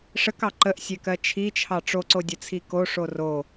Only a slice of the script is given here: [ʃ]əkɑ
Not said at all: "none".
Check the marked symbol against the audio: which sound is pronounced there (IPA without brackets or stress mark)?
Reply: ʂ